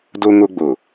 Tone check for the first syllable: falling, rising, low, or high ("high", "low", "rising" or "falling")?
high